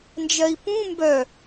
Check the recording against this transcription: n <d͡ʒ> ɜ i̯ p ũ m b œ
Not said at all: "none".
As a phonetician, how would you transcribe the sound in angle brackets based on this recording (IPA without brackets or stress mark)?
d͡ʒ